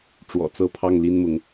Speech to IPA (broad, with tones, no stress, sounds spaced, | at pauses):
ʈ͡ʂ w ɔ̰˨˩ t͡s ɤ˥˧ pʰ ɑ˥˩ ŋ l i˥ n m ʊ˧˥ ŋ